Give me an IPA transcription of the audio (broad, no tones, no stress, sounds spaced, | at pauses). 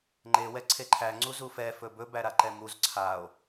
ŋ͡ǃ e w ɛ ǀʰ e ǃʰ æ ŋ͡ǀ u z u f ɛ f ɵ b ɵ b æ ɾ a ǃ ɛ m u z ǀʰ a o̯